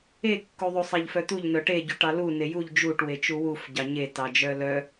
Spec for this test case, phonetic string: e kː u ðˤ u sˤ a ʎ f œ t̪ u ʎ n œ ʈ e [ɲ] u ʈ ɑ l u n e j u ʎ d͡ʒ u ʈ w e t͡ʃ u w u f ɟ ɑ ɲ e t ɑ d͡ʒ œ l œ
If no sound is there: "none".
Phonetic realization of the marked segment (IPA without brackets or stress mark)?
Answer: ɟ